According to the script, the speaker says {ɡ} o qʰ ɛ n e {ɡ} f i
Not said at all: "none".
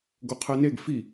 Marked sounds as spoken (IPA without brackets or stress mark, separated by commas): ɡ, ɡ